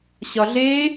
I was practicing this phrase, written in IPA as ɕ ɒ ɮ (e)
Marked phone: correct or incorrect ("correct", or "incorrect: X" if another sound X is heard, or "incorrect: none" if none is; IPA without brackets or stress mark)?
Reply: correct